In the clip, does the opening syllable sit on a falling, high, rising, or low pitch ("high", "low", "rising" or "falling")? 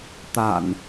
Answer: low